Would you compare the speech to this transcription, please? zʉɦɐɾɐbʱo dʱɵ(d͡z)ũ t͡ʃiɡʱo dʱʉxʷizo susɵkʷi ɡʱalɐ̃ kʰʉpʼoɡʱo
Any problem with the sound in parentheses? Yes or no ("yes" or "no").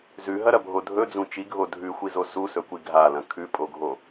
no